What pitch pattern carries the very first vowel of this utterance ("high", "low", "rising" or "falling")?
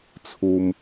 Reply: low